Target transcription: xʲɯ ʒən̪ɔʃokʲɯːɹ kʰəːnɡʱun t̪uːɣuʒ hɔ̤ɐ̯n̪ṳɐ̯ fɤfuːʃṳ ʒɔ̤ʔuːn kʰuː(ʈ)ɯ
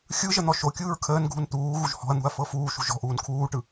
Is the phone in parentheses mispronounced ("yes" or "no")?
no